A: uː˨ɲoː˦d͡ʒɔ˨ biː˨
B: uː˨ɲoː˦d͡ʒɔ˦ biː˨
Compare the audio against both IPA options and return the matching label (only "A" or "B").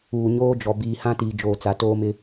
A